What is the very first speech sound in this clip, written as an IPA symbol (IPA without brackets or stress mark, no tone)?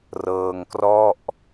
r